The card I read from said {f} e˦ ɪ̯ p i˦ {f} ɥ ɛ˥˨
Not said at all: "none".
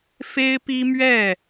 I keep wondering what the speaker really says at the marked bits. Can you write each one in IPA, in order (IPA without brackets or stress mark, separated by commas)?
f, m